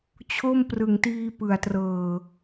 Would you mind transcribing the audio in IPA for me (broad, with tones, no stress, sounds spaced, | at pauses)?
t͡ɕʰ o˥˩ m p r ɯ˨˩ ŋ t iː˧ p ɯ˨˩ a̯ t r ɤː˨˩